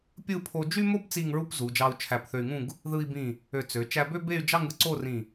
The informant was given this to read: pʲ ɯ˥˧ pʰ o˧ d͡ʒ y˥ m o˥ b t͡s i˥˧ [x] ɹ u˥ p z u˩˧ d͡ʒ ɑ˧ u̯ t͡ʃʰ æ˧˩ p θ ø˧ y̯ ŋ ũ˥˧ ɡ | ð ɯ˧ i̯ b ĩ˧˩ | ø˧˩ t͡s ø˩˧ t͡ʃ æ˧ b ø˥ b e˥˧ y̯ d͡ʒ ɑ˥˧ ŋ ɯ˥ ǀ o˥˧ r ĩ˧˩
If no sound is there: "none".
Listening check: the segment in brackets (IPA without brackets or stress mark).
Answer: ŋ